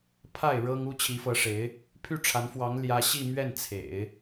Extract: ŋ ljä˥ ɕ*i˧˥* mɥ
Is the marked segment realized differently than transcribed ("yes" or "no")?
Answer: yes